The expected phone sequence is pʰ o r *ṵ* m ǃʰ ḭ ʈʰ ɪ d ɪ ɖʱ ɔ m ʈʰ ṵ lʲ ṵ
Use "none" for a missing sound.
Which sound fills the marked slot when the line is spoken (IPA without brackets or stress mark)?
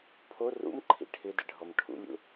ṵ